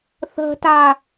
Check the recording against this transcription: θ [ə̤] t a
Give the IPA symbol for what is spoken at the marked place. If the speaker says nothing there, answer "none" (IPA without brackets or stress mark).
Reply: ə̤